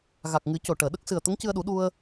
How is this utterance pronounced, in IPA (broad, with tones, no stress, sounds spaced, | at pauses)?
ɣ a˨˩ k̚ ŋ ɨ˨˩˦ c o˨˩ ʈ əː˨˩˨ ɗ ə˦˥ k̚ s ɨ˨˩ ə̯ t̪ ə˧˥ ŋ c ɨ˧ ə̯ ɗ u˨˩˦ ɗ u˧ ə̯